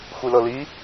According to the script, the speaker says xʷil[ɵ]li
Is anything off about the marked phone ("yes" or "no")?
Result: yes